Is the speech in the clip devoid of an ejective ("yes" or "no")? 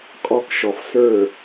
no